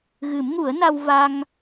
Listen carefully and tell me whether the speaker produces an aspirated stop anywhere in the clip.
no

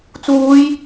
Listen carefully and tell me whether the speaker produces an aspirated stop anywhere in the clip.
no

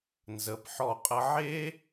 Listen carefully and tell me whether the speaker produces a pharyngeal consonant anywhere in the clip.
yes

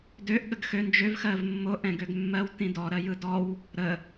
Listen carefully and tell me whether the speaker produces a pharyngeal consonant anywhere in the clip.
no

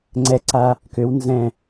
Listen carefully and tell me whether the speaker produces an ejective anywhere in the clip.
no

